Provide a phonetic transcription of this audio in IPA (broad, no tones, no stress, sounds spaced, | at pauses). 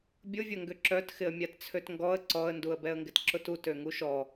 bʲ ʊ vʲ ɐ ŋ ɡ ʏ ǁ œ t x ɪ ə̯ mʲ a t t͡sʰ ø t ŋ ɡ ɔ ə̯ ǀ ɔ ə̯ n d u ə̯ b ɛ ə̯ ŋ ɡ ɪ t ǁ ʊ t u t ø ŋ u ʃ ɔ